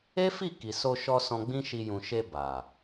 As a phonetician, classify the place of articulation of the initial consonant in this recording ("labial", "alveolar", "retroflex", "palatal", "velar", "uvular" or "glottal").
labial